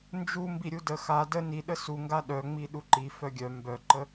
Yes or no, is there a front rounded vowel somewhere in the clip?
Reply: yes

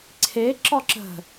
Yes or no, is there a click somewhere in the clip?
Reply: yes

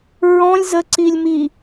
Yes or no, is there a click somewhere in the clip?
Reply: yes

